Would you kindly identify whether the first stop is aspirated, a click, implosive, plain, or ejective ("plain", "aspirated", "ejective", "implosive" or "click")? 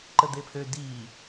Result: click